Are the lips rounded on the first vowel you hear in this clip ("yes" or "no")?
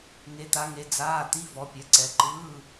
no